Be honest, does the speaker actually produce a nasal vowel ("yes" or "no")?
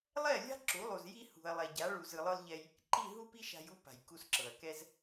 no